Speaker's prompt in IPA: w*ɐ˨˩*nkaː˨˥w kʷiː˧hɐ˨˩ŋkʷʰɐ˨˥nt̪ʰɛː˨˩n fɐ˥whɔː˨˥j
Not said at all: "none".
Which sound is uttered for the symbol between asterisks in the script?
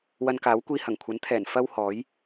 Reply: ɐ˧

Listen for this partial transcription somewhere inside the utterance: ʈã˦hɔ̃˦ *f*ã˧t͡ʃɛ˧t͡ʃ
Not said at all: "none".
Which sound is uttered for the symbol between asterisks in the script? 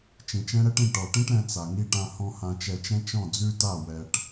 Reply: h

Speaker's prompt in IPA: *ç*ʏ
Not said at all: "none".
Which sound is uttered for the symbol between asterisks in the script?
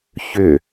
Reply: ç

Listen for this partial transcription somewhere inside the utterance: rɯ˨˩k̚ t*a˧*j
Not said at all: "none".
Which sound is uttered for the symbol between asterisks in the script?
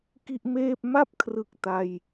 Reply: a˧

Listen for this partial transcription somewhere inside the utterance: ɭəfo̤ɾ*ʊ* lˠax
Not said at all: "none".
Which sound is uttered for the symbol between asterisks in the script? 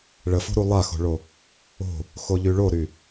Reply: u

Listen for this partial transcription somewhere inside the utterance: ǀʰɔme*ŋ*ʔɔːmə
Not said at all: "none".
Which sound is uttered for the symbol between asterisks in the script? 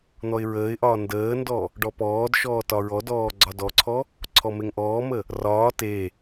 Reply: ŋ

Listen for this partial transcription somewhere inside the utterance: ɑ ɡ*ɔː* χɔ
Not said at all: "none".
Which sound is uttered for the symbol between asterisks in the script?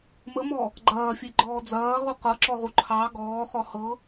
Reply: ɔː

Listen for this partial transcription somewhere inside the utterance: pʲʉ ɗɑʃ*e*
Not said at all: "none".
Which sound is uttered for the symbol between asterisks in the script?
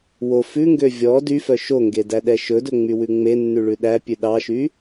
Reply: y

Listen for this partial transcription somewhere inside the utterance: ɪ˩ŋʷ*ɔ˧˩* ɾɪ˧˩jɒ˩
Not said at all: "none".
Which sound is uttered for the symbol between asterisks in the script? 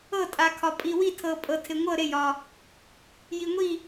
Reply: ɤ˧˩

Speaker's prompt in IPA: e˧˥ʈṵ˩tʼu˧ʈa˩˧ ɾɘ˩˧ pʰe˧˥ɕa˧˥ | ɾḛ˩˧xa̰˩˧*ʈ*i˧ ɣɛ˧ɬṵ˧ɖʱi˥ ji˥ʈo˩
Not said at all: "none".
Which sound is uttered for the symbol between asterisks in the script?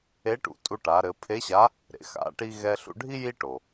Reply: ʈ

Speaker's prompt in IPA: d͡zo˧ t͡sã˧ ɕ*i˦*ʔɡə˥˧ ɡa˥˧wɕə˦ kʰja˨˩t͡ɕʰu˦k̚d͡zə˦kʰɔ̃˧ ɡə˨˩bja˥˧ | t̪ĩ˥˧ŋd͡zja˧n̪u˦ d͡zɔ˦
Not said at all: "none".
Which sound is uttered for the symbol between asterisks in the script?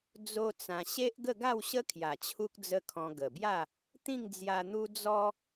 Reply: e˦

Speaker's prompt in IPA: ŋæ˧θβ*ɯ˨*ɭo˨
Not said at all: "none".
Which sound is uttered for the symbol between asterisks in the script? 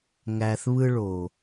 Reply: ɯ˦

